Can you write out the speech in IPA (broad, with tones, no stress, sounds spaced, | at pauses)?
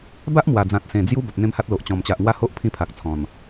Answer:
b a˦ ʔ m w a˨˩ d͡z ã˨ t̚ s ẽ˨˩ d͡z j u˦ b a˨ p̚ n̪ ẽ˦ m h a˦ t̚ l o˨ ʔ t͡ɕ ɔ̃˨˩ m t͡ɕ a˨ ʔ ŋ w a˥˧ h o˦ ʔ pʰ ĩ˥˧ pʰ a˨ k̚ t͡sʰ ɔ̃˨˩ n